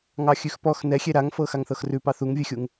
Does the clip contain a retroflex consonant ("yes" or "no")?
no